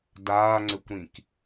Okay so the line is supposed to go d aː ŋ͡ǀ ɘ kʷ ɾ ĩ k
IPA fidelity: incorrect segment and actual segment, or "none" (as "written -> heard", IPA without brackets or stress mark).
none